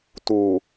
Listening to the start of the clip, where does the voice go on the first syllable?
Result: low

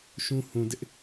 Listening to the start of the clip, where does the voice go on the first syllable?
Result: high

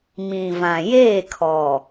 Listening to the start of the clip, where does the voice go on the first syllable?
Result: low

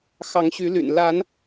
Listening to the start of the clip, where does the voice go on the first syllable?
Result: rising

